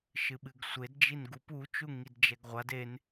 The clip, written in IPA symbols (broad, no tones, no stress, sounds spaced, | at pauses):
ʃ ɨ ɓ ɨ ɡ sʷ e d d͡ʒ i n ɡ u p u t͡ʃ u ŋ i d d͡ʒ ɛ ɡ ʁʷ a d e n